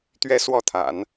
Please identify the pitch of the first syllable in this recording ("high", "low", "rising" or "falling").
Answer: high